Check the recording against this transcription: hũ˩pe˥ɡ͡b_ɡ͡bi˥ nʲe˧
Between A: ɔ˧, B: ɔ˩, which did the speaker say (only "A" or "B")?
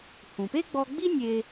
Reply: A